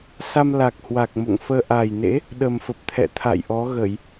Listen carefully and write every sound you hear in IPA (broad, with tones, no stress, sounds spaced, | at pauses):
s a˧ m l a˨˩ k̚ h w a˨˩ k̚ m o̰˧˨ ŋ f əː˧ ʔ a˨˩ j n ḛ˧˥ | ɗ ə˨˩ m f ə˨˩ p̚ t̪ʰ ɛ̰˧˨ t̪ʰ a̰˧˨ j ʔ ɔ˨˦ ɣ ə˧˩˨ j